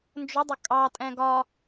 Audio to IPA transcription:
n d͡ʒ ʊ dˤ ʊ kʼ ɑ tʼ ɛ̃ ɡ ɒ

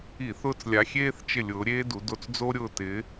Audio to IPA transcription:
i˧˩˧ θ ʊː˦˨ t͡s lʲ a˨˦ xʲ eː˥ θ t͡ʃ ɪ˦˨ lʲ ʊː˨˦ ɾʲ eː˥ d u˨˦ d o˦˨ t͡s d͡z o˥ ɾʲ ʊː˦˨ t ɪ˨˦

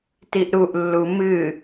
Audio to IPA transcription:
t i ʔ ɾ u ʔ lː u m ɨ

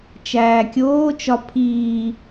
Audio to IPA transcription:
t͡ʃ æː kʲ oː t͡ʃ ɒ pʰ iː

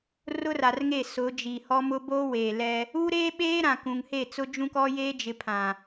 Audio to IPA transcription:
r ʊ˦ r a˨ r ŋ e˦˨ s ʊ˨˦ d͡ʒ i˨ h ɔ˦ m ʊ˦ b oː˦ w eː˨ l ɛ˦ | u˦ ɾ eː˦ ɓ eː˦ ɾ ã˨ k ũ˨ ŋ h e˦˨ t͡s ʊ˦ d͡ʒ ũ˦ k ɔ˦ j eː˦ d͡ʒ ɪ˨ pʰ ã˨

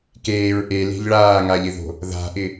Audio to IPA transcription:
k eː ɹ ʔ e l e̤ ʎ ɭ aː ŋ a ʎ ɪ ð o̤ | ð a̤ ʔ ɪ

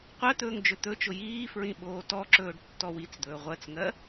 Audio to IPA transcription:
qʷ ɜ t̪ ɵː ŋ d͡ʒ ɵ t̪ ɵ t͡ʃ ʊ j iː f ɹ ĩ ɓ oː t ɔ ǁ ɵː ɖ tː ɔ w i t͡s d̪ ɵː ʁʷ ɜ t͡s ŋ ɜ

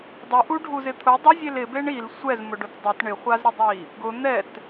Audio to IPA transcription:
dˤ ɪ ʔ u ɖʱ u z ɪ t̪ʰ ʊ dˤ ʊ zʲ e l ɪ b e ɳ i l sʷ ɛ z m ʊ ɖ ʊ t dˤ ɪ t ɳ ɪ χʷ a z ɾ ɪ dˤ i | ɡ ʊ n̪ ɛ t

